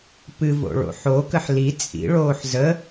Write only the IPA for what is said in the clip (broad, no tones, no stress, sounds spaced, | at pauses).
p ɨ v o̰ ɭ o̰ ħ o k ə ħ l i t͡sʼ ḭ ɭ oː ħ z ə